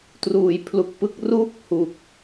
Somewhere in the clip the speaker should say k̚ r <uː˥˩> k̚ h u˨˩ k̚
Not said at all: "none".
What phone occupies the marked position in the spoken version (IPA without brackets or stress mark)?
uː˥˩